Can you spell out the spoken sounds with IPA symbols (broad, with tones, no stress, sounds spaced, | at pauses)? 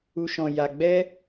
u˧ ʃ ɔ̃˧ j a˧ ɡ͡b ɛ˦